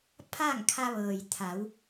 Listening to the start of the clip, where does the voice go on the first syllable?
falling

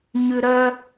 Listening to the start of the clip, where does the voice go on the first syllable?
low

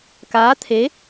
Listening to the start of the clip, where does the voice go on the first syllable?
rising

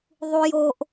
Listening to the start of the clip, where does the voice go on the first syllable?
high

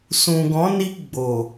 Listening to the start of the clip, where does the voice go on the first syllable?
low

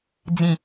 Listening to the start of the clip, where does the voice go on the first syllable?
low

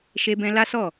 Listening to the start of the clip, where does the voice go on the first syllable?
high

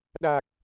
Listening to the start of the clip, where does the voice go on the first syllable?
low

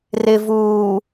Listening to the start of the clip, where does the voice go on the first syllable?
low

